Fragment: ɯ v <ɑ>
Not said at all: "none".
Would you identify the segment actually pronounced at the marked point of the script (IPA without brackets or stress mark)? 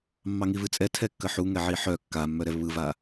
a